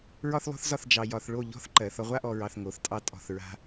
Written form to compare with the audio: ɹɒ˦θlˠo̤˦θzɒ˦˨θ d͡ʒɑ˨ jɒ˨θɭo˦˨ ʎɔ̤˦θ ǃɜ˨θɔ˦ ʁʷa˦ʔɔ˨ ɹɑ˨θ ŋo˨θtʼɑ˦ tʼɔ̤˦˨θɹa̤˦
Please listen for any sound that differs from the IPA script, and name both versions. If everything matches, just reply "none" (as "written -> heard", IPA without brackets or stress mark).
none